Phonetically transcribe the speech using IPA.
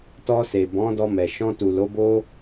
t ɔ˧ s e˨ b ɔ̃˨˦ d ɔ˧ m ɛ˨ ʃ ɔ̃˧ t u˨ l o˨˦ b o˦

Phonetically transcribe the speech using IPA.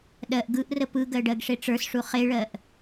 ɗ ɜ ʔ ɡ ɯ ʔ r ə p ɯ ɡ ɜ ɖ ɜ ɡ ʂ e ʈ͡ʂ ə˞ s ʂ u χ e ɭ ɜ ʔ

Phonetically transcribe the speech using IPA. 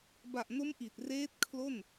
b a˨˩ ʔ n o˦˥ m ʔ i˨˩ t̚ r eː˦˥ t̚ kʰ l o˥˩ n

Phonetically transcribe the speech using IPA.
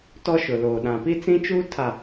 t ɔ˦ ʃ ʊ˨ l oː˨ ɗ ã˨ p i˦ t͡s ĩ˦ t͡ʃ uː˦ tʰ a˨

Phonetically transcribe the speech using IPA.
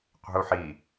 qʷ i̤ u̯ ħ i

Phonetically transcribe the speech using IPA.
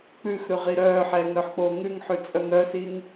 k͡p ʉ x ɾ ʉ ʁ i ɾ œː ħ ɛː ŋ ɾ œ ħ k͡p oː ŋ ʉ ŋ ħ ʉ t͡sʼ œ ŋ ɾ œ s i ŋ

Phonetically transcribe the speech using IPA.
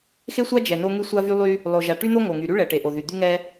x e˥ sʷ a˥ d͡ʒ ɛ˩ n o˥ ŋ y˥ sʷ a˥ v y˥ lˠ y˥ | lˠ o˩ ʒ a˩ ʈ y˥ n̪ o˥ ŋ o˩ ŋ y˩ ɾ y˥ ɭ ɛ˩ ʈ e˩ ʔ o˩ ð y˩ d̪ y˥ ŋ ɛ˥

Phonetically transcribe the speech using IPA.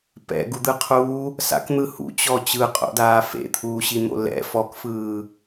p ɛ̰ ɡ u d̪ ɯ qʰ uː | s a̰ k n̪ ɯ h ṵ t͡ɕ ɔ t͡ɕ ɯ qʼ o̰ d aː f ḛ t̪ʰ uː ɕ i n̪ o̰ l ɛ̰ f ɔ k f ɯː

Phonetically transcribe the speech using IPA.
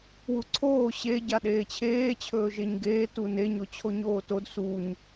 w u ǀʰ oː ɕ e ɟ a ɗ eː t͡ɕʰ eː t͡ɕʰ ɵː ʒ e ɲ ɡ eː t u n e ɲ o t͡ɕʰ o ɲ oː t o d s u ɲ

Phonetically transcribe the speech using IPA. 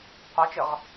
qʷ ɛ t͡ʃ ɨ ʁ

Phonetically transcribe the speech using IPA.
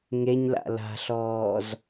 ŋ e ɲ l a̰ l a̤ ɬ ɔː z

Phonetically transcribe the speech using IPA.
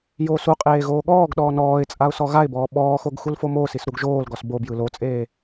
j oː s u qʼ eː ɣ oː ɠ ɔː ɡ ɗ ɔː n ɔː ɪ̯ t͡sʼ a ʊ̯ s ɔ ɣ a ɪ̯ b ɔː ɓ ɔː x o ɡ x u l f o m oː s i s ɾ u ɡ ʒ oː l ɡ ɔ s b o b j ɯ l o t͡sʼ eː

